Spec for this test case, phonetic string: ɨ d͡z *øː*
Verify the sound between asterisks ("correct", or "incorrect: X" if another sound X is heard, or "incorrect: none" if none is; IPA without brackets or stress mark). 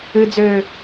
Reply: correct